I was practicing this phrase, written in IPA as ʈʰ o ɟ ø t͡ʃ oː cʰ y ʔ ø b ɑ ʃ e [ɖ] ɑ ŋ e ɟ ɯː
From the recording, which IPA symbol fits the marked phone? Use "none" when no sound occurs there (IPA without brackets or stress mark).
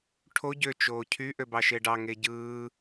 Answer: ɖ